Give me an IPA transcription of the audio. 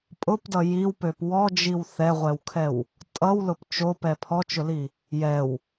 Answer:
pʼ ʊ p d ʌ j i w p ø p w ɔ d͡ʒ i w θ ɛ ʁʷ ɛ w kʰ ɛ w | tʼ ʌ w l ʊ p t͡ʃ o p ɛ pʰ ɔ t͡ʃ ʊ l i | j ɛ w

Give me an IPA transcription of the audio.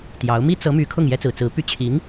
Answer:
t̪ j ɑ˧˥ ʊ̯ m i˥ t͡s ɤ˧˥ m y˧˥ kʰ ʊ˥˩ ŋ j ɛ˥ t͡s ɹ̩˨˩ t͡s ɹ̩˧˥ p y˥˩ t͡ɕʰ i˧˥ ŋ

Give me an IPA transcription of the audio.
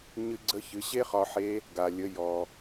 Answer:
ɲ ɨ˧ ɡ͡ǀ ə˧˥ ç ɨ˩˧ ɕ e˥ χ ɒ˧ ħ e˧˥ | ɡ a˩ lʲ ə˩˧ j ɔ˩

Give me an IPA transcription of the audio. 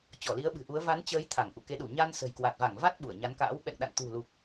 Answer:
t͡ɕ ɔ˧˩ l i˨˦ ə̯ ɓ ɨ̤˨˩ ʔ u˨˦ ə̯ v a˨˦ n t͡ɕ əː˨˦ j t̪ʰ a˧˩ ŋ ʔ ṵ˧˨ k e˨˦ ɗ u˧˩ ɲ a˧ n s ə̤˨˩ j k w a˨˩ t̚ v a˧˩ ŋ v a˦˥ t̚ ɓ u˧˩ ə̯ ɲ a˨˦ n k a̰ː˧˥ w ɓ ɛ̰˧˨ ŋ ɗ a̰˧˨ n t̪ ṳ˨˩ l u˨˩ k̚

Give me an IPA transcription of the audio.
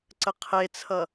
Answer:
ǀ ə qʰ e t͡sʰ ʌ

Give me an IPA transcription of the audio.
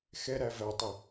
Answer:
x ɛ ɾ æ v æ tˤ ɪ

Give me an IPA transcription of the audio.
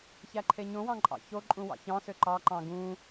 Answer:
ç æ ǃʰ e ɲ õ w ɑ̃ ǃʼ ɑ̰ ç o ǃʼ ũ w ɑ̰ ç ɑ̃ s ø ǃ ɑ ǃ ɑ̃ ɡ ũ

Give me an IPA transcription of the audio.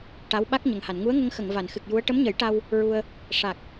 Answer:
ʈ a˧˥ w ɓ a˦˥ k̚ ɲ ə˨˩ ŋ h a˨˩˨ n ŋ u˧˥ ə̯ ŋ ə˧ ŋ x ə˨˩˨ ŋ v a˨˩˨ n x ɨ˨˩ k̚ j u˧˥ ə̯ ʈ ə˧˥ m ɲ ə˨˩˦ j ʈ a˧ w | ɹ u˧ ə̯ | ʂ a˨˩ k̚

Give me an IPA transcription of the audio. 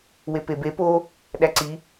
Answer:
w e p e b e p o | ɗ æ ǀ i

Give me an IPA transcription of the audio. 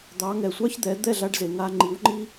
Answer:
d̪ ɑ˩˥ ŋ ɛ˩ sʷ ɑ˥ ç d̪ ɛ˩˥ d̪ ɛ˥˩ ɮ a˧ ɖ z e˩ ŋ a˧ ŋ͡ǃ i˩˥ w ŋ͡ǃ i˥

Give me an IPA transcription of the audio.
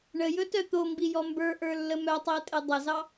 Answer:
ɳ ə j ɵ t œ t̪ o m b i j ɔ m b ə˞ ʔ ə˞ lː ə m œ tˤ i ə̯ tʼ e dˤ ə z ɑ

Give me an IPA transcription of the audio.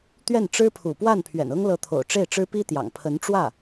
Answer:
t̪ ɥ ɛ˥˩ n ʈ͡ʂ ɻ̩˥ pʰ ṵ˨˩ p w a˥˩ n pʰ ɥ ɛ̰˨˩ n ɤ˥ ŋ l ɤ˧˥ t̪ʰ o̰˨˩ ʊ̯ ʈ͡ʂ e˥˩ ɪ̯ ʈ͡ʂ ɻ̩˥ p i˥ t̪ j ɑ̰˨˩ ŋ pʰ ə˧˥ n ʈ͡ʂ w ä˥˩

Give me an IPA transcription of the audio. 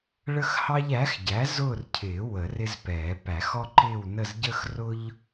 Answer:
ɭ ə˦ x h ɑ˦ ʎ æ˩˥ x ɟ æ˩˥ z ʊː˦˨ r cʰ ɪː˨˩˦ w ə˨˩˦ r ɪ˦ z p ɛː˨˩˦ p æ˨˩˦ x ɔ˦ ǃ ɪː˦˨ w n ə˦˨ z ɟ ə˦ x r ʊ˦ ʎ

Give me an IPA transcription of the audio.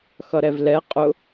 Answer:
x ʌ ɾ ɛ v l ɛ qʼ ʊ

